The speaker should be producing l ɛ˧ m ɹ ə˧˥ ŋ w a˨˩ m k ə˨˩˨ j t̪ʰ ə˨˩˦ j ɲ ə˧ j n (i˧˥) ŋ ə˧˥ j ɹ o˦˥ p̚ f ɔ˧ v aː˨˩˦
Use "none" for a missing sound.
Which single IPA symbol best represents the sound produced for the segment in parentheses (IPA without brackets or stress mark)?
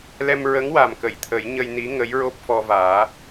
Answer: i˧˥